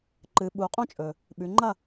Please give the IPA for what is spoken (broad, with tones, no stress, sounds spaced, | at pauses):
ǃ ɨ˩˧ ɓ u˩˧ qʼ õ˦˥ t͡ʃʼ ɵ˩ | ɓ ʉ˩˧ ŋ͡ǃ ɐ˥˨